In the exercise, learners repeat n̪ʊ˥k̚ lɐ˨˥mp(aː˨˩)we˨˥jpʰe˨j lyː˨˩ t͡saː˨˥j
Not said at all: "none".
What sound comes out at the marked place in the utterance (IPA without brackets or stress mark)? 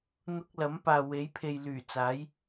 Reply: aː˨